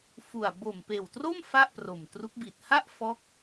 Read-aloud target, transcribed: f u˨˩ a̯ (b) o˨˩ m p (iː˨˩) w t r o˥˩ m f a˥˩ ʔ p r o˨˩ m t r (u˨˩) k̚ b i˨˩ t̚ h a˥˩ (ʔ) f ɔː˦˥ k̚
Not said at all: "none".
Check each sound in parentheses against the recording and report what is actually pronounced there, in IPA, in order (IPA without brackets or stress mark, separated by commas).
b, eː˨˩, u˦˥, ʔ